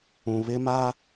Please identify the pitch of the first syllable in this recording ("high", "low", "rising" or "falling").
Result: low